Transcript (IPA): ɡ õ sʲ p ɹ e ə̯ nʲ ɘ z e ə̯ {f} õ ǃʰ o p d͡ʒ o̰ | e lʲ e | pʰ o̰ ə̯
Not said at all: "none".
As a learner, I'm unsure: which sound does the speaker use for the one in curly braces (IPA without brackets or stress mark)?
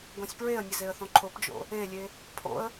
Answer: θ